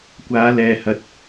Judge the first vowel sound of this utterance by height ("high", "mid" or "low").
low